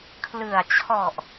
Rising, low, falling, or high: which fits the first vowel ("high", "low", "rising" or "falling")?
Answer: low